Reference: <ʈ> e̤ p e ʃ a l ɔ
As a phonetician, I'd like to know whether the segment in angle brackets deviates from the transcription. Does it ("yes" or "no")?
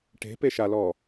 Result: no